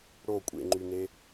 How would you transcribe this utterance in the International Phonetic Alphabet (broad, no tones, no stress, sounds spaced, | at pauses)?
ɽ o kʷʼ ḛ ŋ͡ǃ y n e